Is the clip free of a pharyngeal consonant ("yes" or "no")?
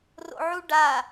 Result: no